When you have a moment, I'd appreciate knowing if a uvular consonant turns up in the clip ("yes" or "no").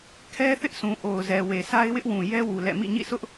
no